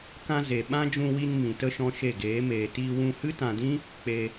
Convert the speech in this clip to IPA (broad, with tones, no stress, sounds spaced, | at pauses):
k ã˧ z e˨ ɓ ã˦ d͡ʒ ũ˧ w i˧ n m ĩ˨ t ə˦ ʃ ɔ̃˧ ʃ e˦˨ ɡ eː˨˦ m eː˨ t iː˧ w ũ˧ h ɨ˦ t ã˨ d ĩ˦ | k͡p e˧